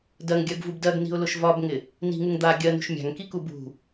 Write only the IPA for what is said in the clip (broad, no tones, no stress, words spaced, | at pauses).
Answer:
dɜŋɡʲɜɡvub dɜɡni̤ʊ̯lʊʃ vɒbŋɪ | ni̤ŋuŋ d̪a ɡʲɜnṳʃ mʲa̤ŋkiku bṳ